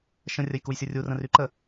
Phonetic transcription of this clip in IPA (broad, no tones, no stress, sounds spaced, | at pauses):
ʃ ə̃ rʲ ə j k u j sʲ u rʲ u r ə̃ r y ǃ ə